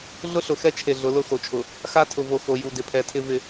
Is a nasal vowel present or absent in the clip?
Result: absent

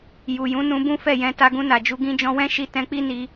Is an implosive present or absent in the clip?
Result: absent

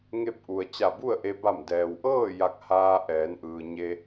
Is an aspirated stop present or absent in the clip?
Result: absent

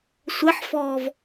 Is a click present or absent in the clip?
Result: absent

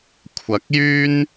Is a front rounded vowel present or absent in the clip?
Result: present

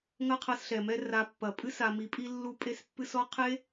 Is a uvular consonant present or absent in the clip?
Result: present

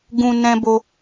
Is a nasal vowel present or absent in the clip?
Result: present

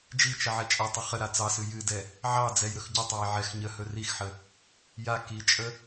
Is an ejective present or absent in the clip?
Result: present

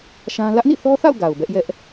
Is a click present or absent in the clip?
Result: absent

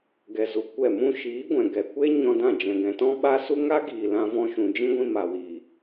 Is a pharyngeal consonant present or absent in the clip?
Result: absent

